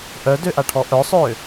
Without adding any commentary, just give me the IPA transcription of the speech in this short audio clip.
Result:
ʔ œ d ø ʔ a ʈʰ ɔ ʔ œ sˤ ø

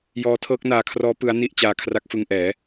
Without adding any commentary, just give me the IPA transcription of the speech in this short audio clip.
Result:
j ɔː˦˥ tʰ ɤː˦˥ k̚ n aː˧ kʰ r ɔː˦˥ p ɯ˦˥ a̯ n i˥˩ ʔ t͡ɕ aː˧ kʰ r a˦˥ k̚ f ɯ˧ ŋ ʔ ɛː˩˦

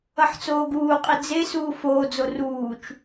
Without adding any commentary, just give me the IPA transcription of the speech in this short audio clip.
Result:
ʌ ħ t͡s oː ɡ uː qʼ i d͡z e s uː f oː d͡z o r uː t͡ʃ

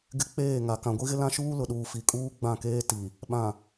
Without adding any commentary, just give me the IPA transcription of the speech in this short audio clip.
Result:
ɡ ɪ˦ k͡p eː˦˨ ŋ a˨ k ã˨ ɡʷ i˦ ɣ ɪ˦ l ã˦ ʃ uː˦ l ʊ˨ ɗ uː˨ f i˨ kʼ uː˦ ɡ͡b ã˦˨ k eː˦ t i˨ | ɓ ã˨

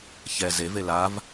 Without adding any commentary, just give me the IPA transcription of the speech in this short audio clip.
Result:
ç ɛ z e v e l a v

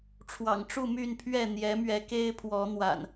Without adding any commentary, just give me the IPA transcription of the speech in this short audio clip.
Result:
ʈ͡ʂʰ w ɑ̰˨˩ ŋ ʈ͡ʂ u˥˨ m y˥˨ n pʰ ɥ ɛ˥˨ n̪ j ɛ˨˦ m ɥ ɛ˨˦ k e˦ ɪ̯ pʰ w ɔ˨˦ n̪ w a̰˨˩ n

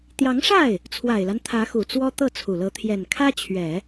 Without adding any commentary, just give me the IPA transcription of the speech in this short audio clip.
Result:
t̪ j ɑ˧˥ ŋ ʂ a˥˩ ɪ̯ | t͡sʰ w a˨˩ ɪ̯ l a˦ n t̪ʰ ä˧˥ x u˨˩ t͡s w ɔ˥ t̪ ɤ˥˩ t͡sʰ u˨˩ l ɤ˧˥ t̪ʰ j ɛ˨˩ n kʰ ä˥ t͡ɕʰ ɥ ɛ˨˩˦

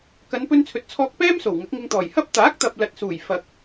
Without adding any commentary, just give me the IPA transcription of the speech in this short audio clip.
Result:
k ɐ˨˧ n p ɵ˧ n t͡sʰ ɵ˨ t̚ t͡sʰ ɔː˧ k̚ p ɛː˥ m s o˨˩ w ŋ ɐ˨˥ k̚ ŋ ɪ˧ ŋ t̪ ɔː˨˩ j h ɐ˥ p̚ t̪ aː˨˥ k̚ t̪ ɐ˨ p̚ l ɐ˨ t̚ s uː˨˩ j f ɐ˨ k̚

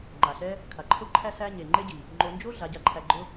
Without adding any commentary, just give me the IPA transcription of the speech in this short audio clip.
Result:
ŋ͡ǃ a˨ ɬ ɛ˦ | kʰ a˨ ǃʰ o˦ ǃʰ æ˦ s æ˦ ɲ e˨ ŋ͡ǃ e˦ ɟ i˨ | ŋ͡ǃ o˧ n d͡ʒ o˦ ɮ a˨˦ ɟ a˧ ǃʰ æ˧ ɡ͡ǃ ʊ˦

